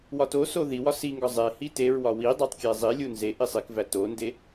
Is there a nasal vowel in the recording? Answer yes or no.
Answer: no